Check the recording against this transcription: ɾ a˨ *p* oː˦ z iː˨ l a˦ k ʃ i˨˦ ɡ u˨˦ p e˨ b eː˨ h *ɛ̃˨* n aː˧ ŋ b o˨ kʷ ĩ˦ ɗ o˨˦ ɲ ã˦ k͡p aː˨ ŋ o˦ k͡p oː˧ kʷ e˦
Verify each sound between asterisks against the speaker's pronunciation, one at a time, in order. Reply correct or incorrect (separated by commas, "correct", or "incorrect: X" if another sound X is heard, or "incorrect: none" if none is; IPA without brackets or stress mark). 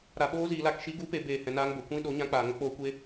incorrect: ɓ, correct